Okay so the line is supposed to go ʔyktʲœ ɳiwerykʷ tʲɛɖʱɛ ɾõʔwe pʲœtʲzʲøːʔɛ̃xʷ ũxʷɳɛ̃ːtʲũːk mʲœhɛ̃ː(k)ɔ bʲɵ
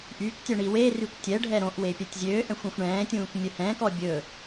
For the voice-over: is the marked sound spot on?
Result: yes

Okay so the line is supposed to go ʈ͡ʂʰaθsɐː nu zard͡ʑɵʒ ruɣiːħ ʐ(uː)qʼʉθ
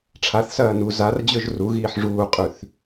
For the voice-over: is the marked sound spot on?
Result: yes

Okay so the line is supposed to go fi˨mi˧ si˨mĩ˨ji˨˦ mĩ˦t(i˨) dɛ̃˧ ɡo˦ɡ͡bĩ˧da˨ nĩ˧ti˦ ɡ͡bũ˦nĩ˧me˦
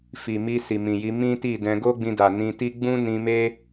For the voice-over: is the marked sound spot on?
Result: no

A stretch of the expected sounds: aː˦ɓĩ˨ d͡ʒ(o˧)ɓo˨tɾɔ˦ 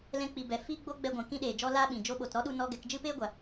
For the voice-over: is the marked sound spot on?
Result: yes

